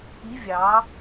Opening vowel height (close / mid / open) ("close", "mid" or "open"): close